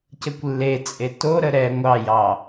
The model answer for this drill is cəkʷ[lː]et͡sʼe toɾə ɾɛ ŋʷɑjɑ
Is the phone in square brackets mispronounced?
no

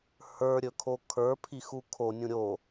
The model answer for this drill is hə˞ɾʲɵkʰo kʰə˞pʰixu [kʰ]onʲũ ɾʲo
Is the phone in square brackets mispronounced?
no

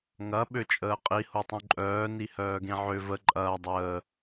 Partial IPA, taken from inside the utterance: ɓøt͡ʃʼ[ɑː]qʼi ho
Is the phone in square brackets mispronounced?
yes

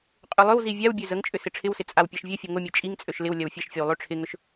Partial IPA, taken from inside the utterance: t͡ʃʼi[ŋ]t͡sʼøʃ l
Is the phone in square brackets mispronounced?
no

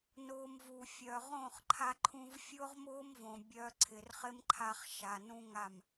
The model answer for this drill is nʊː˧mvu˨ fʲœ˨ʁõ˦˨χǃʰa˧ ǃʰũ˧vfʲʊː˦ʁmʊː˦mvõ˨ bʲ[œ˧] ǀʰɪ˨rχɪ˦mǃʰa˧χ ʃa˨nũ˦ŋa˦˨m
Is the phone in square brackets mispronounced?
no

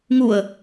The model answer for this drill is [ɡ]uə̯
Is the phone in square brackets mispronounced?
yes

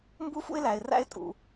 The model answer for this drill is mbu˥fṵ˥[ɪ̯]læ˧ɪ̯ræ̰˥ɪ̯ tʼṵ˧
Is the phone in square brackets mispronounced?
no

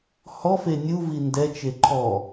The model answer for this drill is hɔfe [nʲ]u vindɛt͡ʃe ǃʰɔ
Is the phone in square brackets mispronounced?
no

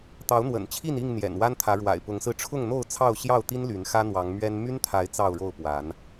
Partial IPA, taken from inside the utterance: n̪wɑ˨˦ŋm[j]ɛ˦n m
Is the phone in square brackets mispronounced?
yes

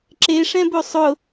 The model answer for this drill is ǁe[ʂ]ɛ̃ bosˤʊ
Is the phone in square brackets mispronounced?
no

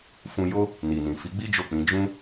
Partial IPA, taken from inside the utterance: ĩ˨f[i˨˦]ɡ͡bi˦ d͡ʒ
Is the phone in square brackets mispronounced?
no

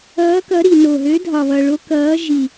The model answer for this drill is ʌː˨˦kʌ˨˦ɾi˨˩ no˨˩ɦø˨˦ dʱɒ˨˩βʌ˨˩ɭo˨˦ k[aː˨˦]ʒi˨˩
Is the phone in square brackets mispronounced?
yes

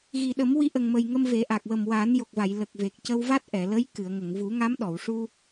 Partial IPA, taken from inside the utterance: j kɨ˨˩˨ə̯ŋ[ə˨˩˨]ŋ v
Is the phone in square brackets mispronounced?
no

